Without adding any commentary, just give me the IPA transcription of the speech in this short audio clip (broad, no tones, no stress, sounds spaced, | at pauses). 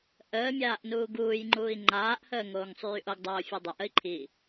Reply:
ʔ əː mʲ aː ʔ n uː ɡ uː j ŋ͡ǃ uː i̯ ŋ͡ǃ aː ʔ h əː ŋ oː ŋ sˤ yː ʔ o ɡ dˤ oː fʲ o dˤ ə ʔ ə i̯ ǃʰ i